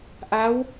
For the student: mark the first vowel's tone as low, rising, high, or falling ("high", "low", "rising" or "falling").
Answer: rising